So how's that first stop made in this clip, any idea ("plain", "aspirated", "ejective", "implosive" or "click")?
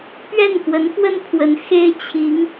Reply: plain